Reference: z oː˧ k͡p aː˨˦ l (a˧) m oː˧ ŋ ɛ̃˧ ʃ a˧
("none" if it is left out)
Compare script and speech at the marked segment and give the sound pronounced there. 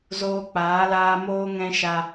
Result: aː˧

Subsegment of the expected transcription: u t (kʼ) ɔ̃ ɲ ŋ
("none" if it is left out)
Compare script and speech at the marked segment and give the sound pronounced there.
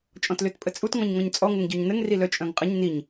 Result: ŋ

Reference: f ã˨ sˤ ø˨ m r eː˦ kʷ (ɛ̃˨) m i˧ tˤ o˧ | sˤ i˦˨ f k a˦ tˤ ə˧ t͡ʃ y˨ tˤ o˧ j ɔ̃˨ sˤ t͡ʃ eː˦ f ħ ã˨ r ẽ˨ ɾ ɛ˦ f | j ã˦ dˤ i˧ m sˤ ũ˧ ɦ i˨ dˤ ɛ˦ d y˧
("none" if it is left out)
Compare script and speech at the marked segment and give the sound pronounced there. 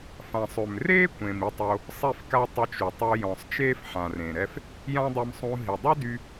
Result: ẽ˨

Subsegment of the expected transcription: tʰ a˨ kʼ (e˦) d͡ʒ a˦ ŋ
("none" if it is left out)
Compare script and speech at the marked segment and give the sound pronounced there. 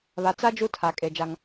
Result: e˨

